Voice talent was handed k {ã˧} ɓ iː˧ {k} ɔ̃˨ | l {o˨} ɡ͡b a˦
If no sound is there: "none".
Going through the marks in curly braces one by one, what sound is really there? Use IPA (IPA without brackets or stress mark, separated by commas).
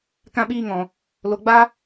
ã˧, ŋ, o˨